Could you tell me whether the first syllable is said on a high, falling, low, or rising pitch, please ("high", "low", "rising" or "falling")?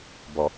low